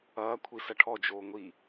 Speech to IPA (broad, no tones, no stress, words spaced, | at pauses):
ɐː kʷʰisɐʈʰɔ d͡ʒoːŋʷi